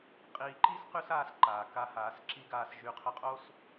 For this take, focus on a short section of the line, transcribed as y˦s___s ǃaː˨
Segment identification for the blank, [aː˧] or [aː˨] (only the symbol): aː˧